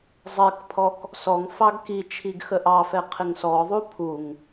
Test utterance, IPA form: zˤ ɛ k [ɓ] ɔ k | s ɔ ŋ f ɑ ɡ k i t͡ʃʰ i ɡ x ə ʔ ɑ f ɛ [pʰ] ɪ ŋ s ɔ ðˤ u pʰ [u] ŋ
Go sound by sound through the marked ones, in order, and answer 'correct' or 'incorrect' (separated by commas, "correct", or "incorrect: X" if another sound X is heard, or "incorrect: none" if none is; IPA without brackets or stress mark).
incorrect: pʰ, incorrect: qʰ, correct